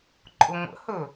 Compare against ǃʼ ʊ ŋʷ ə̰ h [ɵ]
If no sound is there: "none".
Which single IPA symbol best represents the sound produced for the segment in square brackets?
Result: ɵ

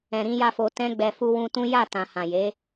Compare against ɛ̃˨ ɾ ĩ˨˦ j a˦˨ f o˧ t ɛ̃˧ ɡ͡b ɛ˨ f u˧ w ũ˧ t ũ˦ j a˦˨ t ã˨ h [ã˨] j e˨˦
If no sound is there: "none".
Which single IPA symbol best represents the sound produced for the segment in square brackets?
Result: ã˨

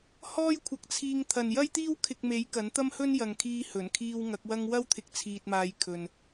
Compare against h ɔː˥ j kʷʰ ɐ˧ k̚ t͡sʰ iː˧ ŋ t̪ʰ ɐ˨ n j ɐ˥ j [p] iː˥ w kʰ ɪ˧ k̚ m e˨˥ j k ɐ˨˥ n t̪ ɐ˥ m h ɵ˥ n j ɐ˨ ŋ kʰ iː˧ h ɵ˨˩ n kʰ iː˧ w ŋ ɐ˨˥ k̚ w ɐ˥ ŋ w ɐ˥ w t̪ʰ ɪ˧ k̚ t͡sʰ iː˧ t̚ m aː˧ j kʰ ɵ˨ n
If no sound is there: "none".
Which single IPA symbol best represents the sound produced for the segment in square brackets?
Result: t̪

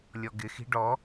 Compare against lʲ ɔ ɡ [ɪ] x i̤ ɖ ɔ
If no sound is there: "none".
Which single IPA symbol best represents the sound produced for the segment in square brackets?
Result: ɪ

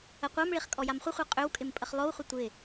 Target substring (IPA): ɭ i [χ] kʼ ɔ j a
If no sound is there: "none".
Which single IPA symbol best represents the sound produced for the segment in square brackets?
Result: χ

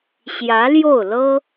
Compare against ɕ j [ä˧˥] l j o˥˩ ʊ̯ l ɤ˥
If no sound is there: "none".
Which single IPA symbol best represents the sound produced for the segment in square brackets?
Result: ä˧˥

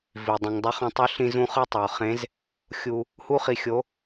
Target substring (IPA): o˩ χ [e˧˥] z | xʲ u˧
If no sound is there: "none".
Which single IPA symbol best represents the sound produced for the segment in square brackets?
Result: ẽ˧˥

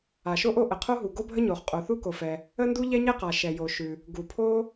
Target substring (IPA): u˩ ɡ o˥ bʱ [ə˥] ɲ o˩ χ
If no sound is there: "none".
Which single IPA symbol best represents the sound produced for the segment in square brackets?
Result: ə˥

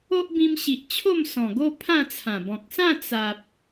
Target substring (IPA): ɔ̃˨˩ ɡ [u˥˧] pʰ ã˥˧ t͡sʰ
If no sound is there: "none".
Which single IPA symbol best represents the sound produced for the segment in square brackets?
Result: o˥˧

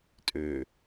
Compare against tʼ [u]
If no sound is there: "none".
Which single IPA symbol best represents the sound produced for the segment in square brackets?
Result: ø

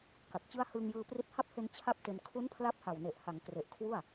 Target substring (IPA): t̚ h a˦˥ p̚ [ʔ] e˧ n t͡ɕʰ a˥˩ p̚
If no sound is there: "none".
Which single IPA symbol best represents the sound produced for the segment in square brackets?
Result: h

